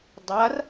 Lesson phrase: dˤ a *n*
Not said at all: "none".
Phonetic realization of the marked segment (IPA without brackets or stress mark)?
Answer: r